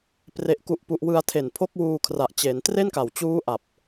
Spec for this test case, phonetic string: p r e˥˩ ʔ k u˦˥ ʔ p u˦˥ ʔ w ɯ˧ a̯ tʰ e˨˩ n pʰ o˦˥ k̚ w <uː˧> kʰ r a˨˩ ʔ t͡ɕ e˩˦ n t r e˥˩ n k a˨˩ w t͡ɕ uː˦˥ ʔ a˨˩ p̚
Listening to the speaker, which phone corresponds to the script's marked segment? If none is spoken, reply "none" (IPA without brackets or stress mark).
uː˧